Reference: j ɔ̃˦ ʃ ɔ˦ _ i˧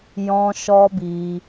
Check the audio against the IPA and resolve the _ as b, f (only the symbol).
b